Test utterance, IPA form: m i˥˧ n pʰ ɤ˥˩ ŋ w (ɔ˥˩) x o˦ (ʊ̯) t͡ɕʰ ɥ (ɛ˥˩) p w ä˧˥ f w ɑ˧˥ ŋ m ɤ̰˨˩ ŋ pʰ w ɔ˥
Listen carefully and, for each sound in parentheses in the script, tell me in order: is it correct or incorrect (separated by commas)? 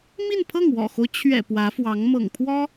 incorrect, correct, incorrect